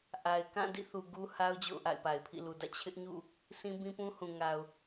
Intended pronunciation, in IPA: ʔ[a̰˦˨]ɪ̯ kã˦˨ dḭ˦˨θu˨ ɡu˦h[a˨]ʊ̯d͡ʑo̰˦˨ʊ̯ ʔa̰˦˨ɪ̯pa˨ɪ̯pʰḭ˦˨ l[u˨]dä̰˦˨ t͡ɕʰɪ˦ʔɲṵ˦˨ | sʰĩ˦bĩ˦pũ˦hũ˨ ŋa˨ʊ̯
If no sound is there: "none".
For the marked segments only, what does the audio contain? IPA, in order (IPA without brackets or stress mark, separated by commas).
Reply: a˨, a˦, u˨